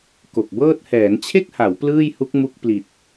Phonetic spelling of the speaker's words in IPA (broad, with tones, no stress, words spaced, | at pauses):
ko˨˩k̚bɤː˥˩t̚ hɛː˩˦nt͡ɕʰe˥˩k̚ha˩˦w plɯː˥˩jhu˦˥k̚mu˦˥k̚ pli˨˩t̚